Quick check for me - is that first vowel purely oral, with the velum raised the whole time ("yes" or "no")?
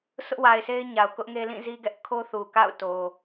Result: yes